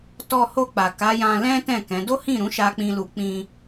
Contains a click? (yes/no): no